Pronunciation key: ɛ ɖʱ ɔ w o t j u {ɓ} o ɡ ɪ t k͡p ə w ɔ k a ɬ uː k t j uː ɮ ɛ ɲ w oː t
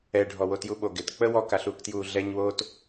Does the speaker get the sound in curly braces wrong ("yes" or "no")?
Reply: no